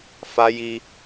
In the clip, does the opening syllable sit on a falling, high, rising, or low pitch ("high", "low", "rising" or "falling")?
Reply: high